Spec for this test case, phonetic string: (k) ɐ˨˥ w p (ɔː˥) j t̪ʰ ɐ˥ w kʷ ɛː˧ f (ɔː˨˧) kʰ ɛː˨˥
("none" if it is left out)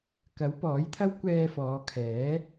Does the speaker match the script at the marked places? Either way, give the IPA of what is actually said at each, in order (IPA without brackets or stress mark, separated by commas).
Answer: k, ɔː˨˥, ɔː˨˧